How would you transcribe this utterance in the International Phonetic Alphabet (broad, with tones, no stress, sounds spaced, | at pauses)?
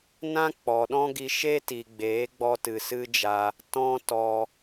n ã˦ k͡p ɔ˨ ɗ ɔ̃˦ ɡ i˧ ʃ e˦ t i˨ ɡ͡b eː˨˦ ɡ͡b ɔ˧ t ɨ˨ s ɨ˦ d͡ʒ a˧ | t ɔ̃˦ t ɔ˧